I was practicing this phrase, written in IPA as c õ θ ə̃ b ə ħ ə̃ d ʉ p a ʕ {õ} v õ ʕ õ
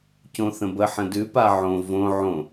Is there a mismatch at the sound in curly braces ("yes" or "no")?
no